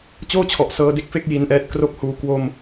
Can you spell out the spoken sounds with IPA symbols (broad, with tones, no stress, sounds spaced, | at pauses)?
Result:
t͡ɕ oː˥˩ t͡ɕʰ ɔ˨˩ ʔ s ɤː˧ d e˦˥ k̚ f e˥˩ k̚ j i˧ n ʔ ɛː˦˥ t̚ k r o˥˩ k̚ h uː˧ k w o˧ m